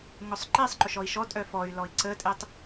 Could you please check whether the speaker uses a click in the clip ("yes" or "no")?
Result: yes